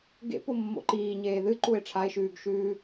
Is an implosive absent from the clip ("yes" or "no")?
yes